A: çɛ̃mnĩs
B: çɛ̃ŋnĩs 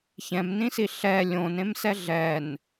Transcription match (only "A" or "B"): A